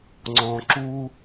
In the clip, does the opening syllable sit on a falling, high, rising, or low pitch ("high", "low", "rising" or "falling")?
low